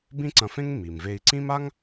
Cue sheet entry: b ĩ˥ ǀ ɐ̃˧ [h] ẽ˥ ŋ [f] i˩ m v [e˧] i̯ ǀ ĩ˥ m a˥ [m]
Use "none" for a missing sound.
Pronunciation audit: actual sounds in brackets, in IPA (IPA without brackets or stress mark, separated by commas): f, m, e˧, ŋ